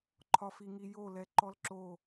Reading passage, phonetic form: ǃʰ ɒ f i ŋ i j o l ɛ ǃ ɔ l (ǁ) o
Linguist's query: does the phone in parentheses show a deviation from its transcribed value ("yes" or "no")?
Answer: no